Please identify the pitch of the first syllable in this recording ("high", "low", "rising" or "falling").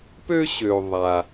high